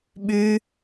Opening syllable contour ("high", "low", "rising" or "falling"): high